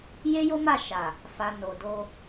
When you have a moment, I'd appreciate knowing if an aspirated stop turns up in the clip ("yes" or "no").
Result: no